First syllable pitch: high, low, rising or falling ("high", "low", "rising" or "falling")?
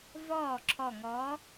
falling